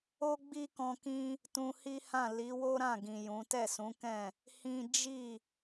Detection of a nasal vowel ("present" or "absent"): present